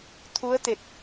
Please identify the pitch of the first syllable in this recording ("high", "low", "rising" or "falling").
rising